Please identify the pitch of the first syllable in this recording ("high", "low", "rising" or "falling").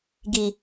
low